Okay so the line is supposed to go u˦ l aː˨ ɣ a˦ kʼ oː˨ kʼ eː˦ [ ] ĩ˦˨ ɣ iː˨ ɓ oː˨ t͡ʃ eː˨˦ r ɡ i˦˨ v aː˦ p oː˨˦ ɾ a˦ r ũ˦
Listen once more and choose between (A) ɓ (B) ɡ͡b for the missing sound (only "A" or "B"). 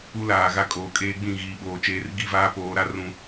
B